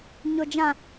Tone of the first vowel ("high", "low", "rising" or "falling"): low